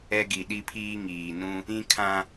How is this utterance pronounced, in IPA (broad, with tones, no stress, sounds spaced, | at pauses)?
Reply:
ɛ˦ ɡ i˨ ɗ i˦ pʰ iː˦ ŋ iː˨ n ũ˦ | ĩ˦ kʰ ã˦